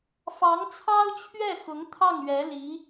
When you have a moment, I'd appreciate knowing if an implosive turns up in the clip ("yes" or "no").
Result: no